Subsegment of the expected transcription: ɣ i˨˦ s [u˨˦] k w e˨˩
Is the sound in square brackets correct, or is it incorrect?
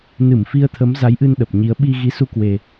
incorrect